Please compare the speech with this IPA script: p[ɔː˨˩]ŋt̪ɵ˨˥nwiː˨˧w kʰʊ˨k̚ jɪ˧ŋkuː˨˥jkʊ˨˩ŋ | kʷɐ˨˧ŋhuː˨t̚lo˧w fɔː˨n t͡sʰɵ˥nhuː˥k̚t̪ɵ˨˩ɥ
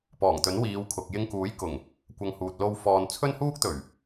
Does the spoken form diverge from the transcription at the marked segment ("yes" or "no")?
no